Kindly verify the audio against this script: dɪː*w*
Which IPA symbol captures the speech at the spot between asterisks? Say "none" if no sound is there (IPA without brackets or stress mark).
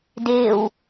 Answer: w